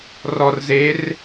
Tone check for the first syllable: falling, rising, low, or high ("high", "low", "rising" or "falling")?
low